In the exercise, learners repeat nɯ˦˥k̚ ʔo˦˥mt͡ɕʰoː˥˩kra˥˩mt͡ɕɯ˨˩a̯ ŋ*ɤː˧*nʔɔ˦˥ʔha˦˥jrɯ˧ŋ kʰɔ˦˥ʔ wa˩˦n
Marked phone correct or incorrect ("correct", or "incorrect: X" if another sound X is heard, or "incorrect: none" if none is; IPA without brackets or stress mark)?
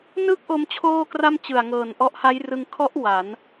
incorrect: ɤː˨˩